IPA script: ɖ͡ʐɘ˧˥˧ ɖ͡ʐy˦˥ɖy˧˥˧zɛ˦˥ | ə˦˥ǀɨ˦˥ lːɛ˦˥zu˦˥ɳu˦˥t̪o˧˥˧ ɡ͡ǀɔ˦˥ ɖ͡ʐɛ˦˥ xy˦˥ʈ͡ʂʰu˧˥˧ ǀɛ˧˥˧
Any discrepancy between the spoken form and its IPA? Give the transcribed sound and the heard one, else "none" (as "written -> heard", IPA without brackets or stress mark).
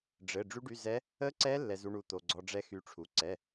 ɨ˦˥ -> ɛ˦˥